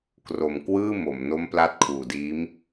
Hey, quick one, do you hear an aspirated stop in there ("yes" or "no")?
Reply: yes